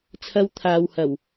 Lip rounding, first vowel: unrounded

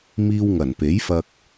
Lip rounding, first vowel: unrounded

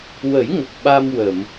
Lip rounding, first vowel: unrounded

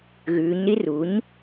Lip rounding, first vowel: rounded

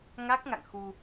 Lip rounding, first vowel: unrounded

